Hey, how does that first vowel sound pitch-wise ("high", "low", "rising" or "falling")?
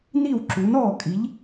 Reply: falling